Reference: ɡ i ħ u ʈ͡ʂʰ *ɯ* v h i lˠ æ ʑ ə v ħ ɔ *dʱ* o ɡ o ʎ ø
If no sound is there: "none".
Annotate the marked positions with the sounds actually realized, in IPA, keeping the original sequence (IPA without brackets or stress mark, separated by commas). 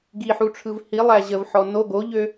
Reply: ɯ, n